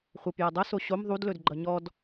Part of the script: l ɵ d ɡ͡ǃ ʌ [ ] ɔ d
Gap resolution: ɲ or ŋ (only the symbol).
ɲ